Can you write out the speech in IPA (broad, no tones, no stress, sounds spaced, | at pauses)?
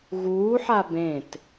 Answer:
ɣ uː ħ a b ẽ t